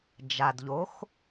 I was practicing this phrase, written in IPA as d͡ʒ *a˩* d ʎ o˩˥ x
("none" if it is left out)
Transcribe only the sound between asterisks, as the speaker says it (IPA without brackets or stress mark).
a˩